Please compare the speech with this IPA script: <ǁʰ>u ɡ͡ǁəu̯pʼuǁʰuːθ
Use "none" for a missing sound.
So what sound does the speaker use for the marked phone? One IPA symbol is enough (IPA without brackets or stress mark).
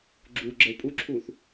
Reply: ɡ͡ǁ